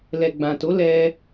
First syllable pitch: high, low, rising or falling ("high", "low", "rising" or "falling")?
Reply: low